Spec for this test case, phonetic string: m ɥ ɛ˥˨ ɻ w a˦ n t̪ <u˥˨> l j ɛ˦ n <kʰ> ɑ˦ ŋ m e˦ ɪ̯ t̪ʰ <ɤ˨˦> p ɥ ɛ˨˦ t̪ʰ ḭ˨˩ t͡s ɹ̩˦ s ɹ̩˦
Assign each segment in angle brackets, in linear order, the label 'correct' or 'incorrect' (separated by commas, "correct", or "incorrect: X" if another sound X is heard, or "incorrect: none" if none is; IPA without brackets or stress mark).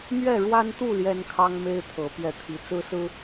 correct, correct, correct